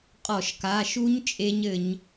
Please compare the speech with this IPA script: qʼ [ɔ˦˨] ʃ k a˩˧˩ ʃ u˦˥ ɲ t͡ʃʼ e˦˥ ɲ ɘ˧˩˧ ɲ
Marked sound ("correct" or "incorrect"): incorrect